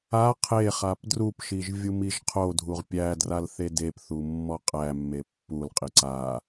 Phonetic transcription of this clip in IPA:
a qʰeχap drupʃiʒ vʲumiʒqʰodʱuʁ pʲædral θedepθu mːɔqʼæmːe pːulqʼi ǀa

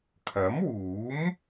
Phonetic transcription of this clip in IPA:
kʰɐ˨˥mwuː˨˥m

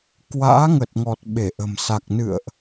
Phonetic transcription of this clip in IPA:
kwa̰ː˧˥ŋə˨˩t̚ŋɔ˨˩t̚ ɓe˧˩ʔə̤˨˩msa˨˩k̚ nɨ̰˧˨ə̯ʔ

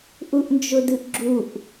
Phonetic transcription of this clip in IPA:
ʔuʔnd͡ʒʊdɨʔɡ͡ǁuʔ

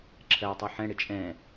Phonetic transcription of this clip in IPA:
ǁʰɜʊ̯tˤi ħɛ̃ɽɪ t͡ʃʼɛ̃

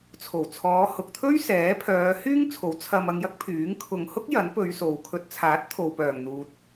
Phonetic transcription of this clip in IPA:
t͡sʰo˨˩wt͡sʰɔː˨˧hʊ˨k̚t̪ʰɵ˥ɥ sɛː˨˥pʰœː˨˧ hyː˥ŋt͡sʰo˨˥w t͡sʰɐ˧m ɐ˧ŋjɐ˥k̚pʰyː˨˥ŋ kʰʊ˨ŋhʊ˥k̚ jɐ˨˥n pɵ˨˧ɥso˨wkʰɵ˧t̚ t͡sʰaː˨˥t̚ t̪ʰo˨wpœː˨˩ŋ n̪uː˨t̚

